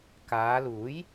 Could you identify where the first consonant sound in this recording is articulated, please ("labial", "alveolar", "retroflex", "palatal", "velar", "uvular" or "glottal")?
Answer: velar